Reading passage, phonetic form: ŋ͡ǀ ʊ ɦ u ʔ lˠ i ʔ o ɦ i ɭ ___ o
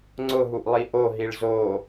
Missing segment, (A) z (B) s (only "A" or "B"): A